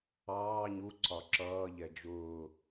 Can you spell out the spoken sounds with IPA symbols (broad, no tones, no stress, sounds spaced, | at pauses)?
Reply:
ɑː ɲ u ǀ ɒ ǁ ʌː ʎ ɛ d͡ʒ ʊː